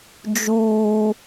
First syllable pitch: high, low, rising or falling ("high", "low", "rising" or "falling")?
high